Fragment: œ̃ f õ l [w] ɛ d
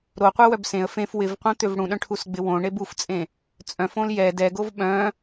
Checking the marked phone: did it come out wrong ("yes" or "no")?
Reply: yes